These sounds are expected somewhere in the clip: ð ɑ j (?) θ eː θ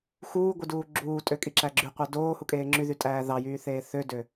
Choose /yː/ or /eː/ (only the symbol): yː